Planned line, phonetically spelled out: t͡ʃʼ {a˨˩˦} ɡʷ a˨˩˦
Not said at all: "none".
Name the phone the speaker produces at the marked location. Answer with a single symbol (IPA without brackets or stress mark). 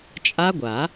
a˦˥